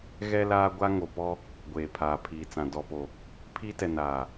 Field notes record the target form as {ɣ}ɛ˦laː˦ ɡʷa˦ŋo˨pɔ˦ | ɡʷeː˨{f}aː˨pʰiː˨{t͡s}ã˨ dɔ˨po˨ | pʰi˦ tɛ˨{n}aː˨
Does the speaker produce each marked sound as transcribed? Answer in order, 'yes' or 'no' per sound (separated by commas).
yes, no, yes, yes